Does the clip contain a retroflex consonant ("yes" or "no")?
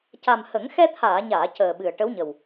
yes